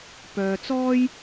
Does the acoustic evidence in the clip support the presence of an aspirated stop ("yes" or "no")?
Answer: no